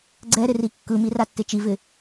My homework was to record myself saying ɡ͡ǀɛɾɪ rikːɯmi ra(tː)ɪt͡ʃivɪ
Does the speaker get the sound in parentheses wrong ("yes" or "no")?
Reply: no